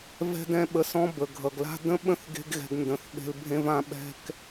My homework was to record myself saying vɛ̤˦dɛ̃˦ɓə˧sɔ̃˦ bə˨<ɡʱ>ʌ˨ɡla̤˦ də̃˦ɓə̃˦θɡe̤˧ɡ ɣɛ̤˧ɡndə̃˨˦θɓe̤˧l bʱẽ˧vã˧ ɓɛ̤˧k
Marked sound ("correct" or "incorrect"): correct